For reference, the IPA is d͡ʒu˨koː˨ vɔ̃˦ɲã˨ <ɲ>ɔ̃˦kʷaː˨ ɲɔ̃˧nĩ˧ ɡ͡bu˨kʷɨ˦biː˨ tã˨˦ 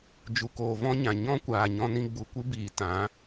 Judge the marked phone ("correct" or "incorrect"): correct